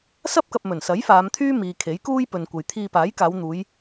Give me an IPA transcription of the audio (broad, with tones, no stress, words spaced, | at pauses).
sɐ˥p̚kɐ˨p̚ mɵ˨˩nsɐ˨˥j faː˨˧mt̪ʰyː˥miː˨kʰe˨˥j kuː˥jpɵ˨nkʷɐ˨j t̪ʰiː˧paː˨˥jkaː˨˧wn̪uː˨˧j